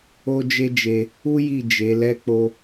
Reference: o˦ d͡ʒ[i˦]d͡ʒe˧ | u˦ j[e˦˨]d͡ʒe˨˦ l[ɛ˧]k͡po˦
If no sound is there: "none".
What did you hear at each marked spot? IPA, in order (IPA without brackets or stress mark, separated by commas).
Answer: e˦, i˦˨, ɛ˦